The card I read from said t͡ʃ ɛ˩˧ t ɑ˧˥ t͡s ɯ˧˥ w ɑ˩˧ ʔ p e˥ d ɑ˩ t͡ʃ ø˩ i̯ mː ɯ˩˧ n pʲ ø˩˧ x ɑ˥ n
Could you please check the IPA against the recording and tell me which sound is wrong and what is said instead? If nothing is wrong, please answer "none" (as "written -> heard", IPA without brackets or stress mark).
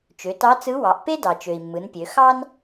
ɛ˩˧ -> ø˩˧